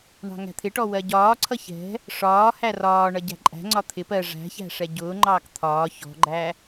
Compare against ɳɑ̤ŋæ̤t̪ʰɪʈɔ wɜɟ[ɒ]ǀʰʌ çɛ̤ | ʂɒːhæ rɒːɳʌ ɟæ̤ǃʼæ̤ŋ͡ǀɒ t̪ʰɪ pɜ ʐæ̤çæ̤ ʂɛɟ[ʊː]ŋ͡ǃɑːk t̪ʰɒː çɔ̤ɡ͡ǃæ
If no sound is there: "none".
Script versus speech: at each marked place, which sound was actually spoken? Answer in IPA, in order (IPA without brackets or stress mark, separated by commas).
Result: ɒː, ʊː